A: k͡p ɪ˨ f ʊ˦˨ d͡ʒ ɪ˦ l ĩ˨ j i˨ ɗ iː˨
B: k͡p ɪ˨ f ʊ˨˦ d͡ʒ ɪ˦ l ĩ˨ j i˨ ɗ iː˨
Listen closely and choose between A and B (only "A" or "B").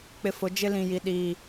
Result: B